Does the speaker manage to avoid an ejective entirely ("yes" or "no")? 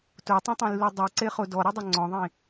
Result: yes